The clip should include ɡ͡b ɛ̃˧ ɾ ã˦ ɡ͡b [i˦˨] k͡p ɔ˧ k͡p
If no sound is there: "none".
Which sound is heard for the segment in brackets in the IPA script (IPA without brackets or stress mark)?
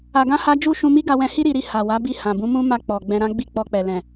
i˦˨